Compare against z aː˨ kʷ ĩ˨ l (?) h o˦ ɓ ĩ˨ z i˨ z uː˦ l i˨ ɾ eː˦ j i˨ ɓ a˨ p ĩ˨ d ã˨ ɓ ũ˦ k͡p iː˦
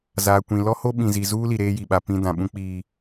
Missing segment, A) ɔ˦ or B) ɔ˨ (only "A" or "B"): A